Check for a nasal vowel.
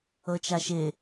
absent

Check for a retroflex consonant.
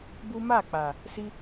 absent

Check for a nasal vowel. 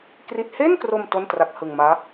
absent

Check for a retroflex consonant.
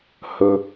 absent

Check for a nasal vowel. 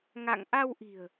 absent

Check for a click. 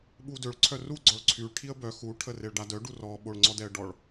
present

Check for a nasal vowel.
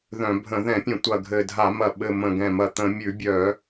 present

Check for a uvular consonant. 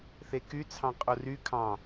present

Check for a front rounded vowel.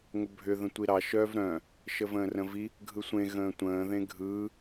present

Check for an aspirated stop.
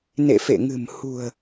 absent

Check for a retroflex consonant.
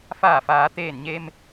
absent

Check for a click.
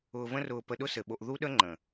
present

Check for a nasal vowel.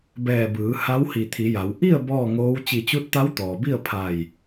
absent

